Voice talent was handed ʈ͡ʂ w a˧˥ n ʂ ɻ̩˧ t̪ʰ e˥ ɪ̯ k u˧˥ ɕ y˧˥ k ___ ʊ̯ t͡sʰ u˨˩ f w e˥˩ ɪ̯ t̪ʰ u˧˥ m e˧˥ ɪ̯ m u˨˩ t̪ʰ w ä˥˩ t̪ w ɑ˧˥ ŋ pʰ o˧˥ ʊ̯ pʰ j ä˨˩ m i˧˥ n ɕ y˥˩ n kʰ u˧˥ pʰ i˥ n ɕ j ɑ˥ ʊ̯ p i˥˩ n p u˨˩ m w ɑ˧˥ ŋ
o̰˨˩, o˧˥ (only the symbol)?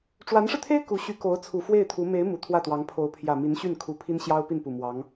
o˧˥